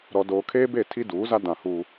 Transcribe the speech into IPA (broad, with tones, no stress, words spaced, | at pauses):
ɾɔ˨ doː˨kʰeː˦be˦˨ tʰi˦duː˨˦za˦ dã˨huː˦